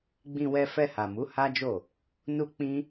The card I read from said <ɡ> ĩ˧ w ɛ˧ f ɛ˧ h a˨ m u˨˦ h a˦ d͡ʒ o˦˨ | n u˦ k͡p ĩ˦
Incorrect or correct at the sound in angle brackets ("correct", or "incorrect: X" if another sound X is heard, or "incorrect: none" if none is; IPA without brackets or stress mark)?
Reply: incorrect: ɡ͡b